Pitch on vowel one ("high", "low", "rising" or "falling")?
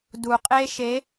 low